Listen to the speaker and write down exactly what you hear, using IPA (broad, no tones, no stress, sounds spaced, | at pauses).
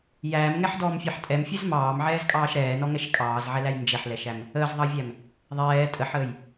j æː m ŋ ɛ ħ d ɔː m fʲ ɑ ħ tʼ ɛ m fʲ ɛ z m ɑː m ʕ ɛː z kʼ ɑː ʃ ɾ ɛː n ɔ ŋ ɛ ʃ kʼ ɑː z ʕ ɛ l æ j n d͡ʒ ɛ ħ l ɛ ʃ æ m | əː z ðˤ ɑ vʲ æ m | ðˤ ɛː tʼ ə ħ əː j